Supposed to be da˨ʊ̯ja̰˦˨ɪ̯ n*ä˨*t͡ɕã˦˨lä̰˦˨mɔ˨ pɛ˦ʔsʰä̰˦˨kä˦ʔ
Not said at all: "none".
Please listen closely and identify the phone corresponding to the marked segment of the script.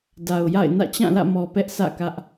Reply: ä̰˦˨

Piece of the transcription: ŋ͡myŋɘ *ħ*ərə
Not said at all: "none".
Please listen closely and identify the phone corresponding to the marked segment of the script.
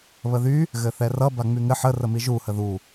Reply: ħ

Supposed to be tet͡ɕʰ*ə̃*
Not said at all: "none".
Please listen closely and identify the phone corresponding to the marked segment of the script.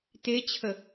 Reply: ə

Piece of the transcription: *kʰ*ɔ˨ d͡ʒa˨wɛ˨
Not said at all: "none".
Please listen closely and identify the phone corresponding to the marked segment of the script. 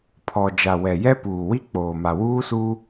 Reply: pʰ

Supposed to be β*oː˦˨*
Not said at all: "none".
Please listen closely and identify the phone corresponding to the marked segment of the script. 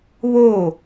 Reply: oː˦˨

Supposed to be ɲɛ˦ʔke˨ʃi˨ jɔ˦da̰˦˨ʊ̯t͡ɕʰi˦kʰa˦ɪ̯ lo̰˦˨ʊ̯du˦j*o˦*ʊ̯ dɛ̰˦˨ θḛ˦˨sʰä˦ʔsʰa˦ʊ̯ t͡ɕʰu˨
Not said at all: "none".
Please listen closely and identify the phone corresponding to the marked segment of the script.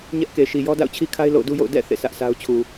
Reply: o̰˦˨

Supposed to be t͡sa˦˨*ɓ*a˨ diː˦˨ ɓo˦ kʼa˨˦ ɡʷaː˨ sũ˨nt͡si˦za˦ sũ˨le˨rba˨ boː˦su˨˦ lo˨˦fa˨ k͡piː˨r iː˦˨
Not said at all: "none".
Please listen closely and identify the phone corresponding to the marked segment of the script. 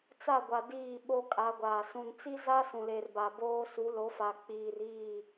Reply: ɡʷ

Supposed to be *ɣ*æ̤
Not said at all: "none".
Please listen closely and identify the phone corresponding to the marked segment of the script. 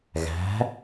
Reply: ɣ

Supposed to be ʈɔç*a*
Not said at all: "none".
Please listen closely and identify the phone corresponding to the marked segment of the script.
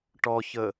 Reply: ə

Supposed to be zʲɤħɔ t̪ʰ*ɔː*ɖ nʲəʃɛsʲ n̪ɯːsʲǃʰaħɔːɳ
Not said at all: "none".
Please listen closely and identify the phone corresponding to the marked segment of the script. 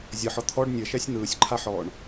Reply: ɔ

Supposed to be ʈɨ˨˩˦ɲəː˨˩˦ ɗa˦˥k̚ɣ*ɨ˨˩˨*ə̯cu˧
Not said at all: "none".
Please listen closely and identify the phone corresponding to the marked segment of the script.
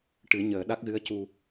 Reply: ɨ˧˥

